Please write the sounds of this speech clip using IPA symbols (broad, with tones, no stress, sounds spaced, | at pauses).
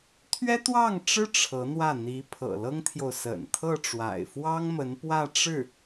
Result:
t̪ʰ ɥ ɛ˥ t̪ w ɑ˥˩ ŋ ʈ͡ʂ ɻ̩˥ ʈ͡ʂʰ ɤ˧˥ n̪ w ä˥˩ n̪ i˧˥ pʰ ɤ̰˨˩ l ɤ˥ ŋ t̪ʰ j o˨ ʊ̯ s ə̰˨˩ n t̪ʰ ɤ˥˩ ʈ͡ʂ w a̰˨˩ ɪ̯ f w ɑ˥ ŋ m ə˧˥ n p w ä˥˧ ʈ͡ʂ ɻ̩˥˩